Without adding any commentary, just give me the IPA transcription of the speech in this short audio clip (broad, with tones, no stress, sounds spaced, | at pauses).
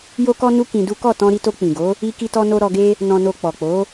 j o˧ k ɔ˧ n u˧ k ĩ˧ d u˦ k ɔ˦˨ t ɔ̃˧ ɾ i˧ t o˧ k͡p ĩ˨ ɡ o˨˦ | i˧ k i˧ t ɔ˧ n o˧ ɾ ɔ˧ ɡ e˦ | n ɔ̃˨ n o˨ k͡p ɔ˨ k͡p o˨˦